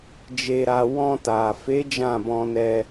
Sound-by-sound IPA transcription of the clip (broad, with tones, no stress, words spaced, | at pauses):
d͡ʒe˧ɾa˧ wɔ̃˧ta˨fe˨˦ d͡ʒã˦˨bɔ̃˧nɛ˧